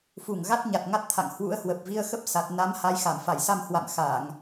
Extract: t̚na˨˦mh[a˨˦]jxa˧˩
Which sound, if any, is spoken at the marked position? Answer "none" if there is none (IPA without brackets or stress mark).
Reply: a˨˦